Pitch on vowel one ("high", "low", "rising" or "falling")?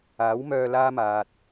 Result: rising